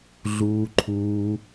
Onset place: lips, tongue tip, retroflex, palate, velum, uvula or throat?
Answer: tongue tip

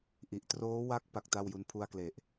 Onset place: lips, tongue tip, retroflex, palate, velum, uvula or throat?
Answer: throat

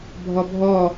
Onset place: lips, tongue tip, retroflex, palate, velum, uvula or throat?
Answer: lips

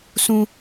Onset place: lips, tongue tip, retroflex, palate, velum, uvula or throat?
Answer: tongue tip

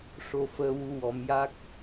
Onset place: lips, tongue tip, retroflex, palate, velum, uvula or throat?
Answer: retroflex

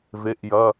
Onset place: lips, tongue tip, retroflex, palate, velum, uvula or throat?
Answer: lips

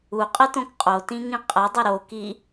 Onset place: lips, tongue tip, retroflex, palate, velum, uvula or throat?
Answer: uvula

